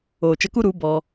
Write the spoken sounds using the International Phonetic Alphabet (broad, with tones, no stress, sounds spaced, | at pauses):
oː˨ t͡ʃ ə˧ k u˦ ɾ u˨˦ b ɔ˧